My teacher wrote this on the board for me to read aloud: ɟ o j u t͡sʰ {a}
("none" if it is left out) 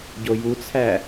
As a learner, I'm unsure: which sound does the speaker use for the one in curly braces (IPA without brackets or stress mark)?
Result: æ